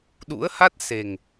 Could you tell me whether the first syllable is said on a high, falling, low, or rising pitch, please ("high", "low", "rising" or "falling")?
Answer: rising